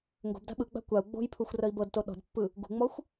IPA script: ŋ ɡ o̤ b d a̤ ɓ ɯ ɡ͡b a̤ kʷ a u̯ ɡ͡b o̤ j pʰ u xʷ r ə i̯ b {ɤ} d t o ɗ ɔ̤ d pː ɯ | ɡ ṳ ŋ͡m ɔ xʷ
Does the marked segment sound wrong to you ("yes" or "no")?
no